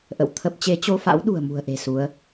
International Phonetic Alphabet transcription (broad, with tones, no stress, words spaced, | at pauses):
ʔə̰˧˨wt̪ʰə˦˥p̚ t͡ɕe˨˦t͡ɕo˧fa̰˧˥w ɗṳ˨˩ə̯mṳ˨˩ə̯ ʔe̤˨˩su˨˦ə̯